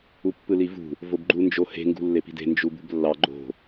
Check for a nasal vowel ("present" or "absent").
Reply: absent